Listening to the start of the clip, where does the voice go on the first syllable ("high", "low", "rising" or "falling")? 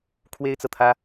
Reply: high